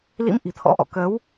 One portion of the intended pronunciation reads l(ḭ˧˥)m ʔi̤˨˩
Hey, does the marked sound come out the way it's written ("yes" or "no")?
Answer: yes